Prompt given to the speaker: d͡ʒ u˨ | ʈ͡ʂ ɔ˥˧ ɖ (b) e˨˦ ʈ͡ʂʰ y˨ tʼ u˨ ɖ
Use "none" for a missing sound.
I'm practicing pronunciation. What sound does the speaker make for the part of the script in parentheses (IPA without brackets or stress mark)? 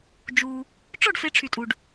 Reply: f